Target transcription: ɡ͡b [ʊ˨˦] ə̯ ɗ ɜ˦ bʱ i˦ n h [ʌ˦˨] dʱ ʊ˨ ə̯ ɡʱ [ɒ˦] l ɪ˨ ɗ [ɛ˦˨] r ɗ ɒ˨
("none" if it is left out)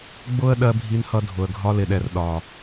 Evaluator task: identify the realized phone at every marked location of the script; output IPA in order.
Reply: ʊ˦, ʌ˦, ɒ˦, ɛ˨

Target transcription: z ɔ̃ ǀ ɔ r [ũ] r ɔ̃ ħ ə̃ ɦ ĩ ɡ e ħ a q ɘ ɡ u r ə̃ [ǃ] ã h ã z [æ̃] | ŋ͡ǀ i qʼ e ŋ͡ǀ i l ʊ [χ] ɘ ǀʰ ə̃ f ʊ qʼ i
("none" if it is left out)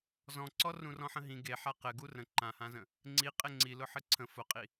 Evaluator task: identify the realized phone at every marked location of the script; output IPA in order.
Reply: ũ, ǃ, ə̃, ħ

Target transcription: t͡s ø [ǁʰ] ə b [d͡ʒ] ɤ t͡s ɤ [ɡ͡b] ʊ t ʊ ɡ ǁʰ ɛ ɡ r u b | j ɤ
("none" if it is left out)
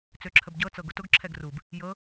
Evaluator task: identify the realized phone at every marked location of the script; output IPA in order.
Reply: ǁʰ, ɟ, ɡ

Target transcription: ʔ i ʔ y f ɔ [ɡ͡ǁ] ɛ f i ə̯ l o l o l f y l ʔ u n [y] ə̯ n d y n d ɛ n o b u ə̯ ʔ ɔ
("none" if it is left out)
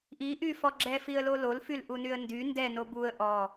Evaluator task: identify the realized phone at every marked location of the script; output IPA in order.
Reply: ɡ͡ǁ, y

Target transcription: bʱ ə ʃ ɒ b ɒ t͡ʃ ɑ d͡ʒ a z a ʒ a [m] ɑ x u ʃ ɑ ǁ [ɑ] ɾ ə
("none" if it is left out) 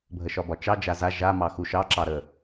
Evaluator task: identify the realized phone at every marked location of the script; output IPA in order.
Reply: m, ɑ

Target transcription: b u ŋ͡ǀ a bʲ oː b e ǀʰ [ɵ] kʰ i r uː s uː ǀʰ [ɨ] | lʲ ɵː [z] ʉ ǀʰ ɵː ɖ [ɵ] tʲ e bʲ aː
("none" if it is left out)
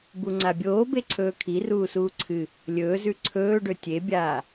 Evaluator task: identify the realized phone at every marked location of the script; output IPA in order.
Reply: ɵː, ɨ, z, ɵ

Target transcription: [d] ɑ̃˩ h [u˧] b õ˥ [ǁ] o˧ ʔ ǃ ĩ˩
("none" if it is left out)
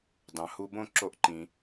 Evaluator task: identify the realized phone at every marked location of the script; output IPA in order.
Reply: d, u˧, ǁ

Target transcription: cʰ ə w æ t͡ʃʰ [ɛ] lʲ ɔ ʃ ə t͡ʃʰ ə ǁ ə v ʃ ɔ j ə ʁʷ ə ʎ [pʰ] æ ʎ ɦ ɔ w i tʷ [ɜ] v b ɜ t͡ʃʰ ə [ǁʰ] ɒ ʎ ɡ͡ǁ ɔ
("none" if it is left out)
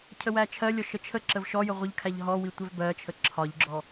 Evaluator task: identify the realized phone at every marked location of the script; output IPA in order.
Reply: ɜ, kʰ, ɛ, ǁʰ

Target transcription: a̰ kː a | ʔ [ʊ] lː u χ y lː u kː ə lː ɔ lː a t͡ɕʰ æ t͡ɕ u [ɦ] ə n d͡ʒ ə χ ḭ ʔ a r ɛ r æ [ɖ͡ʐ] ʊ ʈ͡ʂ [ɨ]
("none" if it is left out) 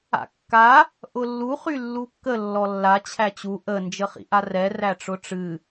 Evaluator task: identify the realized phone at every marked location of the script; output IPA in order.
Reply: ʊ, ʔ, ʈ͡ʂ, ɨ

